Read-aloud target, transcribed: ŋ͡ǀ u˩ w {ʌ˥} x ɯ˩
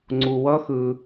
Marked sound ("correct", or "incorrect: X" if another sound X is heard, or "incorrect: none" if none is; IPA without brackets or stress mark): correct